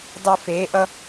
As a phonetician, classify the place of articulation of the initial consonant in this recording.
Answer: alveolar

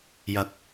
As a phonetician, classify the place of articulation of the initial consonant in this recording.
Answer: palatal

